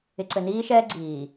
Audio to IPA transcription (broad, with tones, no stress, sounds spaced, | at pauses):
ɪ˨ ǀ ɘ˨ n iː˦ ʃ ɛː˦ ɡ͡ǀ iː˨